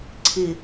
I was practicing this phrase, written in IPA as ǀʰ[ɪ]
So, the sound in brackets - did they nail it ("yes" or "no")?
yes